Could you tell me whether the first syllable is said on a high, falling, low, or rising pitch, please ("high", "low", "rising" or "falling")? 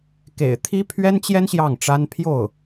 low